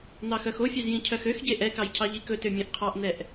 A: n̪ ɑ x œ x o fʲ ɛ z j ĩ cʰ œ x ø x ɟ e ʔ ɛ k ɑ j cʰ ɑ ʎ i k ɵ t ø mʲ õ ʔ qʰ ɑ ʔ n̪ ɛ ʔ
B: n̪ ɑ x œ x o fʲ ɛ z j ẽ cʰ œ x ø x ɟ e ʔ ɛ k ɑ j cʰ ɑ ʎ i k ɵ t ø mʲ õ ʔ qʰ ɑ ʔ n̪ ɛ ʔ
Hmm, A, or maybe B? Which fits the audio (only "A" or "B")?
A